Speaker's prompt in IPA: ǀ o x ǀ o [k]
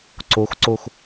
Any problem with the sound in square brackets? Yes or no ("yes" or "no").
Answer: yes